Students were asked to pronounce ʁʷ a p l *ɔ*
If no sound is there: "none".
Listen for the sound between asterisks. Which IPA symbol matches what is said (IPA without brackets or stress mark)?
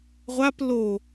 o